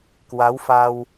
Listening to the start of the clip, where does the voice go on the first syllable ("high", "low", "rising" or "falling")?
rising